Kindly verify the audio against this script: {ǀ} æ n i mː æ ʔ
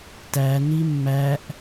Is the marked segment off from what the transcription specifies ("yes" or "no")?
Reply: yes